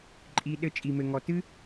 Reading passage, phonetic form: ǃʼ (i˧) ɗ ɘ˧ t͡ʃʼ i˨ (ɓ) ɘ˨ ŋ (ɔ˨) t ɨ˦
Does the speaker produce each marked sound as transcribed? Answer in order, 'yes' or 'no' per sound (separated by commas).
yes, no, yes